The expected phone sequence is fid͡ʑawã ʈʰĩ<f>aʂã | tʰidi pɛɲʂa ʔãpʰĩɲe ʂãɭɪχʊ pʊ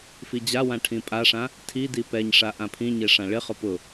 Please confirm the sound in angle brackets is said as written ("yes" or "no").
no